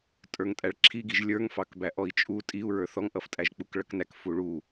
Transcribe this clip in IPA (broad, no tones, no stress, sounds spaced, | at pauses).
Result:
tʼ ə˞ ŋ tʼ æ ɭ ǁʰ i ɡ i ʒ lʲ ə˞ ŋ f ɑ k b æ ʔ ɔ i̯ t͡ʃʼ u tʼ i u̯ ɹ ə˞ θ ɔ ŋ ʔ ʌ f tʼ æ ʒ k͡p u k ɭ ʌ k n æ k f u ɭ u